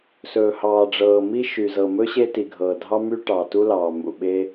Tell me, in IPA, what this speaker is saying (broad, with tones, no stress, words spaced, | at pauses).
sɵː˩hɑː˩ɖ͡ʐɤː˩mi˥ ʃy˩zɤ˩mɵ˥ ɕe˥ti˩ ɡʱɤː˩dʱɑ˥my˥ ʈɑː˩tu˥lɑː˩ mṵ˩ɓe˥